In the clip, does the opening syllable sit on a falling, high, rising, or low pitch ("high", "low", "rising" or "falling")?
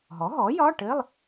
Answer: rising